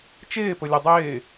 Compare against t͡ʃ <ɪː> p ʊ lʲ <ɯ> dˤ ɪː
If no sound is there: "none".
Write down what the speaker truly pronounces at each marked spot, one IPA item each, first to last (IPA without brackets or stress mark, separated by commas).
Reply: ɪː, ʊ